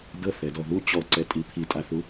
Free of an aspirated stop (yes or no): no